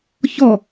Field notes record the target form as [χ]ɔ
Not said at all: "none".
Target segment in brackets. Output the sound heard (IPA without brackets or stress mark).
ç